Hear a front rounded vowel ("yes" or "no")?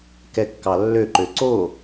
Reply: yes